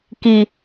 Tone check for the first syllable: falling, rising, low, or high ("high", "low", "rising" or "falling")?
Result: low